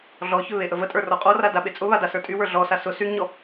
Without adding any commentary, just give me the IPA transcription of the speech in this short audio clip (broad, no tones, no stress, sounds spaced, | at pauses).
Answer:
ɮ ɔ ç ʏ β e ʔ ə v ə tʼ ə˞ r ɔ qʼ ɔ r a d a ɓ e t͡sʼ ʊ β a d a s ə˞ tʼ y w ə˞ ɮ ɔ s a s ʊ s y ŋ ɲ ɔ